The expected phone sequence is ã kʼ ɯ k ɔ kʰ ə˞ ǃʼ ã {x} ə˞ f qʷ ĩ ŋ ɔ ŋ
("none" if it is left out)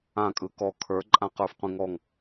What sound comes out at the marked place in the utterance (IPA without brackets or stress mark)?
q